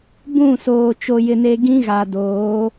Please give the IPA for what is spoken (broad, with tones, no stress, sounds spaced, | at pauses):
b ũ˦˨ s oː˨ t͡ʃ o˨ j ɪ˨ n e˨ ɡ ĩ˦ ɣ a˨ d oː˨˦